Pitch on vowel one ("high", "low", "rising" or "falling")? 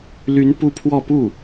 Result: rising